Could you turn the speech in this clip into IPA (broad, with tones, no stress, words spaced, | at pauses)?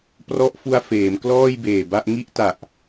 prɔ˦˥ʔfu˧a̯ feː˩˦mklɔː˥˩jbeː˨˩ba˥˩ʔ ŋi˥˩ʔta˨˩ʔ